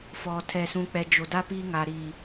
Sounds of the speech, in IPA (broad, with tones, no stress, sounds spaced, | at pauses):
f ɔ˨ tʰ ɛ˨ s ũ˨ k͡p ɛ˨ d͡ʒ o˨ d a˦ p iː˦ ŋ a˨ ɾ iː˨